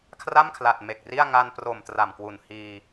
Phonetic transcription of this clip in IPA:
kʰ r a˥˩ m kʰ l a˨˩ t̚ m e˨˩ k̚ r i˥˩ a̯ ŋ a˧ n p r o˨˩ m t r a˨˩ m k w u˨˩ n h iː˧

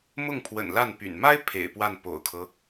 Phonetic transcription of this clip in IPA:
m ʊ˥˩ ŋ pʰ w ə̰˨˩ n l a˥˩ n p y̰˨˩ n m a˥ ɪ̯ pʰ ḛ˨˩ ɪ̯ p w a˥˩ n p o̰˨˩ ʊ̯ kʰ ɤ˦

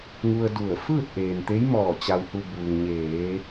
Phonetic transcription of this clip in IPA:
ŋ u˧ ə̯ d u˧˩ ə̯ f ɯː˥˨ t̚ ʔ eː˩ n t̪ e˧˥ j m ɔː˧˩ t͡ɕ a˩ w h u˩ b uː˩ ŋ ɲ eː˩˧

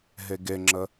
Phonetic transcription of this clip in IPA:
ɦ e ɡ e ŋ͡ǁ ə

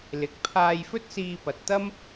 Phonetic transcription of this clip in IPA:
l ɪ˨ k̚ pʰ aː˧ j f ɵ˥ t̚ s iː˧ p ɐ˨ t̚ t̪ ɐ˥ m

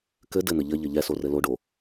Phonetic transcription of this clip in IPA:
k ɘ d ɘ n̪ ɘ ʎ ɘ ʎ ɘ ʎ ɛ s o r ɘ l o ɖ o

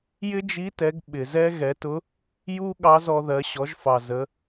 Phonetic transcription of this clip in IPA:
j ɪ˥ d͡ʒ i˧˥ t ɛ˩˧ ɡ ɓ ɪ˩ z ɛ˥ ɣ ɛ˩˧ t ʊ˧˥ | j u˥ ɠ ɑ˧˥ z ɔ˧ ð ɜ˩˧ ɕ ɔ˩˧ ʒ f ɑ˩ z ə˩˧

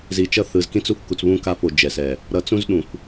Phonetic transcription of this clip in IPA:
z i˨ t͡ʃ ʌ˦ θ ɯ˨ z k ĩ˦ t͡s u˦ f k u˨ t͡s β ũ˦˨ k a˦˨ f o˨ d͡ʒ ɛ˨ s ɛ˨ | ɾ ʌ˨ t͡s ũ˦ z ɗ ũ˨ f

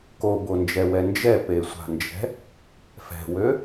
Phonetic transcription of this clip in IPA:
k o b o n d͡ʒ ɛ w ɛ n d͡ʒ ɛ p e sʷ a̤ n d͡ʒ ɛ̤ | f ɛ̤ w ø

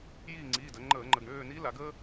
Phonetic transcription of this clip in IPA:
j iː˦˨ ŋ͡ǀ iː˩˧˩ d əː˩˧ ŋ͡ǃ əː˧˩˧ ŋ͡ǃ ə˩˧˩ ɡ ɳ øː˦˨ n i˧˥ l a˩˧ ɡ ə˥

